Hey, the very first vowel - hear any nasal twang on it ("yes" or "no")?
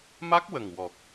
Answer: no